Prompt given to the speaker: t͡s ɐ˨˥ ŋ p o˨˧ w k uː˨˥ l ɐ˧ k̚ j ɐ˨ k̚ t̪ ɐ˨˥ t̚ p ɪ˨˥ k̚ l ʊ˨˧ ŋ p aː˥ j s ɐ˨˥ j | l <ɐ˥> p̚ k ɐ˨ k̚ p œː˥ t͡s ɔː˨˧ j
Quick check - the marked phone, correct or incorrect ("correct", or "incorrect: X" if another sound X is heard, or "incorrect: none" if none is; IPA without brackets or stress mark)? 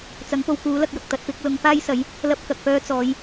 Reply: correct